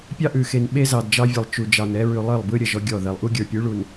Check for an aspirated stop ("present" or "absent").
absent